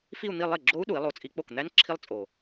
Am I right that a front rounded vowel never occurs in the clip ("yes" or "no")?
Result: yes